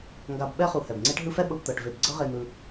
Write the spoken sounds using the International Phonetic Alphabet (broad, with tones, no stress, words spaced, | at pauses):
ŋɡa˨b ɓɛ˦ χu˩hɛ˩b ŋ͡ǀe˦ʈɦɯ˦fɛ˥ ɓɤ˨bt̪ɤ˩ʈve˨b ɡ͡ǀɤ˦ʁe˨ n̪ɯ˨